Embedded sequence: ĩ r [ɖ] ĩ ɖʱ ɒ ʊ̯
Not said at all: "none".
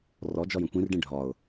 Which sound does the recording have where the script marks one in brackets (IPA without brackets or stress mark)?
ɖ